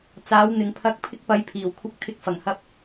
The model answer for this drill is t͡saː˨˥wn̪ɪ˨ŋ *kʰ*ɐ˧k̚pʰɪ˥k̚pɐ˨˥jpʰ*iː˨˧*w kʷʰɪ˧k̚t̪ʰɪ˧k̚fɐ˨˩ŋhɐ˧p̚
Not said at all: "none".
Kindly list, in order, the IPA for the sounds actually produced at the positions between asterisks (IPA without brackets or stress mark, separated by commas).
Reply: pʰ, iː˨˩